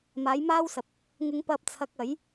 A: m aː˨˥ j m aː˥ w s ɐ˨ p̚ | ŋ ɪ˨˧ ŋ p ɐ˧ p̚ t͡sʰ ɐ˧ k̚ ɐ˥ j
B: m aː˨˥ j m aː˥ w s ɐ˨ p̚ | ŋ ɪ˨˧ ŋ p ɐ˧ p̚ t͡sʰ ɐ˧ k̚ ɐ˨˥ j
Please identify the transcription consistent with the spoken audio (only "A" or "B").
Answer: B